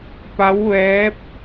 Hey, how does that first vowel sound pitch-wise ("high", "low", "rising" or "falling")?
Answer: rising